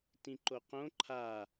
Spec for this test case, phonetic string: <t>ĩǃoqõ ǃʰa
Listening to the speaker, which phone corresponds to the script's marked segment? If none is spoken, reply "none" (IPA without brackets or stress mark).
t